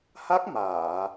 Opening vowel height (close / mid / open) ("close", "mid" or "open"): open